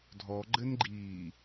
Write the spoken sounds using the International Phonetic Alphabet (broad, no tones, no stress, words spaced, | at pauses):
dʱɔɡ͡ǃɘnɡ͡ǃiː